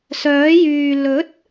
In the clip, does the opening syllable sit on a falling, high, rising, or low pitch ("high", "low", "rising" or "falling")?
rising